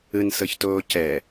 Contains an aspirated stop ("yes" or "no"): no